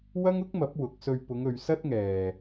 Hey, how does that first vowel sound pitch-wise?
high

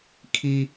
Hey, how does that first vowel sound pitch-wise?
high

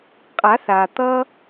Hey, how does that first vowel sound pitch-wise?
rising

